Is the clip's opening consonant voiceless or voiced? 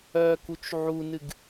voiceless